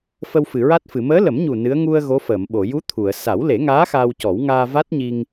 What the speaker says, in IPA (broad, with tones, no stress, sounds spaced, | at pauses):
f ə˧ w f ɨ˨˩˨ ɹ a˦˥ t̚ f ɨ˨˩˨ m əː˧˥ l ə˨˩˦ m ɲ u˨˩ n ɨ˧˥ ə̯ ŋ u˧ ə̯ ɣ o˧˥ f əː˨˩˨ m ɓ o˨˩˨ j u˧˥ t̪ʰ u˨˩˨ ə̯ s a˨˩˦ w l e˨˩˦ ŋ aː˧˥ x aː˧ w c ɔ˨˩˦ w ŋ aː˧ v a˦˥ t̚ ɲ i˧ ŋ